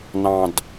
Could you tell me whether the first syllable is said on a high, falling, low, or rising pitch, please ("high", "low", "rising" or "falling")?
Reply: low